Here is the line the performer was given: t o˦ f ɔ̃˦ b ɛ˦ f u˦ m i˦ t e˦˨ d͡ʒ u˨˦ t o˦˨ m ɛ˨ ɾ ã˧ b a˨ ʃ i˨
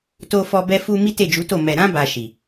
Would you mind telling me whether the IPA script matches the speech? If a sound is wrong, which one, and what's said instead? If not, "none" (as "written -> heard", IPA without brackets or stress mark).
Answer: ɔ̃˦ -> ɔ˦